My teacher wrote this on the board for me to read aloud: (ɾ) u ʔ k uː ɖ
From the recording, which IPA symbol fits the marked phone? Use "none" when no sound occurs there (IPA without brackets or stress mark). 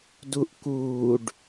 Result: d